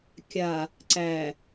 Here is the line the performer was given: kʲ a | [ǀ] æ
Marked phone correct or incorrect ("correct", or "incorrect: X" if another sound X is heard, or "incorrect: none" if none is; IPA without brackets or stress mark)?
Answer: correct